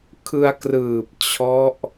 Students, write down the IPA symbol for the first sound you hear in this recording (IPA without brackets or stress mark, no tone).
kʰ